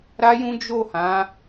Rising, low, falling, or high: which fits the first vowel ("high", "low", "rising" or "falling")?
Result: high